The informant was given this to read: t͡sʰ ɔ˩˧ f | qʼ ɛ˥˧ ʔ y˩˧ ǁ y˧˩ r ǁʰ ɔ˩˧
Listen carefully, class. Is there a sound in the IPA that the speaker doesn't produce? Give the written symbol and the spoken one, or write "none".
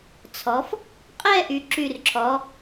none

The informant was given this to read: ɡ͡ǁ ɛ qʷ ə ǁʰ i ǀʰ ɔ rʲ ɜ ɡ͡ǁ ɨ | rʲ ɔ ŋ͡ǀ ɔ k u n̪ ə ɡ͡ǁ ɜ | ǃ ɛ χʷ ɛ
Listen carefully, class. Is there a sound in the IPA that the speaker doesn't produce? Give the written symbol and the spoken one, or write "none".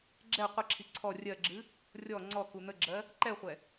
none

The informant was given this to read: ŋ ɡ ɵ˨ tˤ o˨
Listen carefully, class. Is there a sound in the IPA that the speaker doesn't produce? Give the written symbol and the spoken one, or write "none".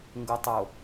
ɵ˨ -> o˨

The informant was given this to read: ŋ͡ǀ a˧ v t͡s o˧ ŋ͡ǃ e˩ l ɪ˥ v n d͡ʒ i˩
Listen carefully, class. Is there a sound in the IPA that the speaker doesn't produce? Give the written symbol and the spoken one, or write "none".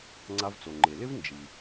o˧ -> o˩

